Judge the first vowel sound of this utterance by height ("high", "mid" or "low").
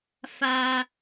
low